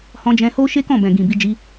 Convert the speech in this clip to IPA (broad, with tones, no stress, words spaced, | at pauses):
hɔ̃˧d͡ʒɛ̃˧ho˦ʃe˦ kɔ̃˦˨bɛ̃˨ɡĩ˨ bi˧ d͡ʒi˧